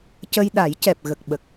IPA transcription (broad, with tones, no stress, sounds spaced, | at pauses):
c ə˧ j ɗ a˨˩˦ j c ɛ˨˩ p̚ ɣ ə˨˩ k̚ ɓ ə˨˩ k̚